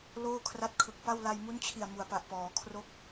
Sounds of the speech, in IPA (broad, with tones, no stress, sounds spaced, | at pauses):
l oː˥˩ kʰ r a˦˥ t̚ kʰ ɯ˨˩ k̚ p a˥˩ w l a˧ j m u˦˥ n t͡ɕʰ i˨˩ a̯ m u˩˦ a̯ p a˨˩ ʔ p ɔː˩˦ kʰ r o˦˥ k̚